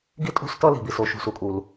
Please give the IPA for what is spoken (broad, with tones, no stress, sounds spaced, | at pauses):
ɡ i˥˧ tʼ ṳ˥˧ s t ʌ˥˧ l i̤˩ b i˩ s o˩˧ ʃ ṳ˩ s u˩˧ kʼ u˩ l